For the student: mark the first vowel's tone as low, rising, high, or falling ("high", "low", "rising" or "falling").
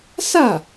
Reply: falling